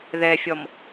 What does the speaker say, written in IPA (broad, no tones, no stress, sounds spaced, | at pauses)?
ð ɛ fʲ ɔ m